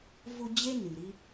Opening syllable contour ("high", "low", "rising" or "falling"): high